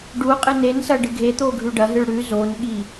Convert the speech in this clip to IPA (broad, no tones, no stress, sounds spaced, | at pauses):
ɖ u qʼ ɨ n e n s ɐ ɖ ɨ ɡʱ e t̪ o ɡʱ ʉ ɖ ɐ ɦ ɨ ɭ ɽ ʉ z o n ɠ i